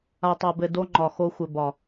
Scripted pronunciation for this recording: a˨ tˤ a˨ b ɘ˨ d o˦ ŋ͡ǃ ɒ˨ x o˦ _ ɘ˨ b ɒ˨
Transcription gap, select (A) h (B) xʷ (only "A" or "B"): B